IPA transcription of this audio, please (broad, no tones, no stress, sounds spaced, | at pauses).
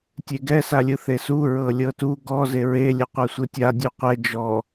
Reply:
tʲ e ɡ ɛ s a lʲ ɯ θ e s u ɹ ɤ lʲ ɤ t u ɡ ɔ z e ɹ e lʲ ɛ qʷ a sʷ ɯ tʲ a dʲ o qʷ ɛ d͡ʒ ɔ